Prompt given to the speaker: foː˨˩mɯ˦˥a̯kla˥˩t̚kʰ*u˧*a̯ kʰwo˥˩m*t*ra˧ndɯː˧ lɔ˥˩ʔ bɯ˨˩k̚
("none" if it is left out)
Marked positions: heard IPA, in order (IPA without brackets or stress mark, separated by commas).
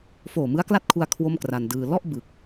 u˧, k